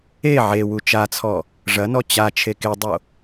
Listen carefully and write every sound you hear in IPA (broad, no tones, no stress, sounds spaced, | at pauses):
e ʕ e w u t͡ʃ a t͡sʰ ɔ | ʐ ɐ n ɔ t͡ɕ a t͡ʃʰ e k e dˤ o